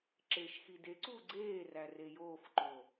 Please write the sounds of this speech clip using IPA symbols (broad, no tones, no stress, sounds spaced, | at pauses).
ǁ eː ʃ x i d e ǀ uː ɡ͡ǀ eː r æ r e j oː f ǃ o